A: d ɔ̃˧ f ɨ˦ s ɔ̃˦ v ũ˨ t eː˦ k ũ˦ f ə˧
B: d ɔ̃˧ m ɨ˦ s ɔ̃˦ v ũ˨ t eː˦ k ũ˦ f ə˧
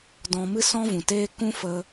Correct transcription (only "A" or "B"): B